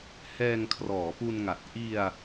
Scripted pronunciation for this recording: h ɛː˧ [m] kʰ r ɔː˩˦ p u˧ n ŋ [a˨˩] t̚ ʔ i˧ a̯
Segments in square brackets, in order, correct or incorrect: incorrect: ŋ, correct

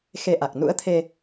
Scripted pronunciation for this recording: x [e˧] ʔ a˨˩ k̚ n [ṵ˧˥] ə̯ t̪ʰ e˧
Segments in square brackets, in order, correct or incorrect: correct, correct

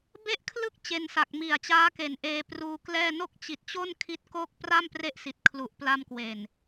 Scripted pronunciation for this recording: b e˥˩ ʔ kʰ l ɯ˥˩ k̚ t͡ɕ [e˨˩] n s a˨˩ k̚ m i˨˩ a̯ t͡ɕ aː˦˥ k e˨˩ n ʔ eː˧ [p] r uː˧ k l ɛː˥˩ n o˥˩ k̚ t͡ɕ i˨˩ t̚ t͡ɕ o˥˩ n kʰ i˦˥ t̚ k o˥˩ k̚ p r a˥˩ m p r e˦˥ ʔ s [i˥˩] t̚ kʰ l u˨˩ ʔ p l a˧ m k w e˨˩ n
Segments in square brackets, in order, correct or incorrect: incorrect: e˧, correct, incorrect: i˨˩

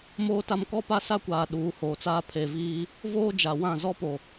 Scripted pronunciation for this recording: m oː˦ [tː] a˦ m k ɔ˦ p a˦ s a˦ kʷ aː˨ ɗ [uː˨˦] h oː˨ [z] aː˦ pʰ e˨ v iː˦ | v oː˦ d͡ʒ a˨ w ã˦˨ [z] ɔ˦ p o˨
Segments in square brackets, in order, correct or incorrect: incorrect: t, correct, incorrect: t͡s, correct

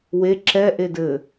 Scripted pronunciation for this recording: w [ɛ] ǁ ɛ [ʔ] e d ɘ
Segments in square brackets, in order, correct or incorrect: incorrect: e, correct

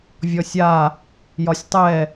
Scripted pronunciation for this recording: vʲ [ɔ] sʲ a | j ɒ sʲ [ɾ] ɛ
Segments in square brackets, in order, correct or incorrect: correct, incorrect: tˤ

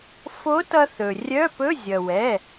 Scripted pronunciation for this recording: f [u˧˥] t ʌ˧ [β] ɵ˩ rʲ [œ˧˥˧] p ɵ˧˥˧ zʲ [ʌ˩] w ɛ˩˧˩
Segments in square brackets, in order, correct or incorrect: incorrect: o˧˥, incorrect: θ, correct, correct

